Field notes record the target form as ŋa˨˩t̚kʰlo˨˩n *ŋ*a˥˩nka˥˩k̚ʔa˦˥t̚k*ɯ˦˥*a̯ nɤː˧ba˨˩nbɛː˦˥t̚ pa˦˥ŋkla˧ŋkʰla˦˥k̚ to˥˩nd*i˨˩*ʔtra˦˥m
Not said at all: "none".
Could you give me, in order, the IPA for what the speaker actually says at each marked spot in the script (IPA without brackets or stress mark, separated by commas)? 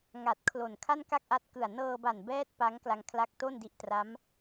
kʰ, ɯ˨˩, i˦˥